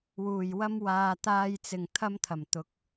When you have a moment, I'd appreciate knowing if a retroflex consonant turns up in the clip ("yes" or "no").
no